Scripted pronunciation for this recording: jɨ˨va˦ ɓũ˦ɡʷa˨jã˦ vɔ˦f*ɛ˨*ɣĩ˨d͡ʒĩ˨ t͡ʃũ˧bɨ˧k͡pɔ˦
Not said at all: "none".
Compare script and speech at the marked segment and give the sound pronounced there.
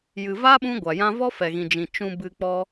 ɛ˨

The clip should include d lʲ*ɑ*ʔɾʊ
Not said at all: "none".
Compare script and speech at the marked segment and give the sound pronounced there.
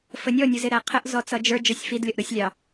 ʌ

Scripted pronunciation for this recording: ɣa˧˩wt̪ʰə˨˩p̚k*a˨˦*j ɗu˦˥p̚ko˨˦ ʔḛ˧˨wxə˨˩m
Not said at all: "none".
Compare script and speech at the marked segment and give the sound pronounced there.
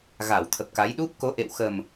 a˨˦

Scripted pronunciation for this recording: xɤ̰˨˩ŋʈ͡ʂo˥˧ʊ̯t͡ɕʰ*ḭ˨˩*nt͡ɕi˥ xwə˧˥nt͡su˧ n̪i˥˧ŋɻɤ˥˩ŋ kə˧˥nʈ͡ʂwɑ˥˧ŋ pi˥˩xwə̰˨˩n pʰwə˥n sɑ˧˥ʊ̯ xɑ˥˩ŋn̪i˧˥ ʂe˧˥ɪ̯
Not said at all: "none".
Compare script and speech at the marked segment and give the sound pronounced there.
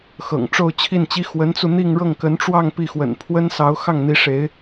i˥˩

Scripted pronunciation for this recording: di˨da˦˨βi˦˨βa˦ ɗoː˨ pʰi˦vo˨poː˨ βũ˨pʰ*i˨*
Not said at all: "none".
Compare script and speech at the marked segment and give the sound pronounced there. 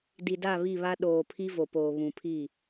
i˦˨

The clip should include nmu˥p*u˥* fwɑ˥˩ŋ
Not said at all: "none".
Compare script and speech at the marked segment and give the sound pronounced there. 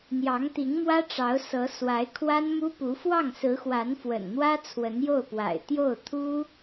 u˧˥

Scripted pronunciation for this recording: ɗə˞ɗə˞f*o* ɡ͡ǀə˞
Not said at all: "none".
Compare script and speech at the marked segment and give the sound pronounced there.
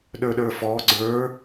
ɔ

